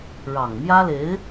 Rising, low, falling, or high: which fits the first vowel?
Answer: low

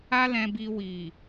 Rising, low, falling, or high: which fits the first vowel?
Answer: high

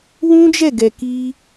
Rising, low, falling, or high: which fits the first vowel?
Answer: high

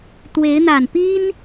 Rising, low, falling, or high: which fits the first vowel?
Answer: rising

